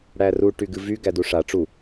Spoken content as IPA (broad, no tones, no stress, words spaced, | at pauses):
ɽæru ʈyɡɨvy ɡæduʂa ʈ͡ʂu